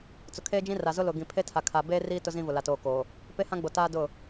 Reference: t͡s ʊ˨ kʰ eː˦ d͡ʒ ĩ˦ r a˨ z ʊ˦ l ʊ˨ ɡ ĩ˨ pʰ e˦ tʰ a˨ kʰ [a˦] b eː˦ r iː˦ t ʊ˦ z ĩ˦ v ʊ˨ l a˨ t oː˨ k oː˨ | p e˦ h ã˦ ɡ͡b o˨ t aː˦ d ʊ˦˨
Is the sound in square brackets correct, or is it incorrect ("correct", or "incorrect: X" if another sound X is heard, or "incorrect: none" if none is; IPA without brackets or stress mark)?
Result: incorrect: a˨